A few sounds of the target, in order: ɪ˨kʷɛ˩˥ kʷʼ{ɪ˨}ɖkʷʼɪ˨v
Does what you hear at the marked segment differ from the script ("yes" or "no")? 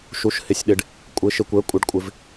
no